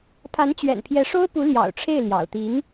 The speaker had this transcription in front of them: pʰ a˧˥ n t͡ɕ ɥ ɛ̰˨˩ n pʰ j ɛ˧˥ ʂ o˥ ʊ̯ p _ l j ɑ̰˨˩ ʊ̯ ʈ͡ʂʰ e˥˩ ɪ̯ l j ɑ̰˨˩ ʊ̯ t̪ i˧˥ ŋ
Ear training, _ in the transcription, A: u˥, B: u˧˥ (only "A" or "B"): B